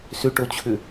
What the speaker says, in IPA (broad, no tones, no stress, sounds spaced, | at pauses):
s ʏ ʈ o t͡ɕʰ ʏ